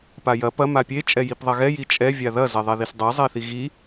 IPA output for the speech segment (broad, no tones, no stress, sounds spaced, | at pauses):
p a j ɐ p ɐ m a pʲ e t͡ʃʼ ɛ j i p ðˤ ɐ ɣ ɛ j i t͡ʃʼ ɛ vʲ a ð ɐ z ɛ ðˤ ɛ ð i s dˤ ɛ zˤ e θ i ɣ i